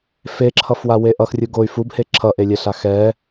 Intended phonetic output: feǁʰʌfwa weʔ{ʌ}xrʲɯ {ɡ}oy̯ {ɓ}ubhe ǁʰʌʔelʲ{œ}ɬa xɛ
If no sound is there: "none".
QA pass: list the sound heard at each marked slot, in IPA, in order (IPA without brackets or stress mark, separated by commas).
ʌ, ɡ, f, ɛ